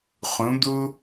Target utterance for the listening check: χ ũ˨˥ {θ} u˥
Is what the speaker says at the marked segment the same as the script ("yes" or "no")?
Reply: no